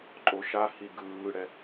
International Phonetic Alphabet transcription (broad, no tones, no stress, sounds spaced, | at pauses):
ǃʼ o ʃ a h i ɡ ɯː ɽ ɛ